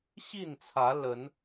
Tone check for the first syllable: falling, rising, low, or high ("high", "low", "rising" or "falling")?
falling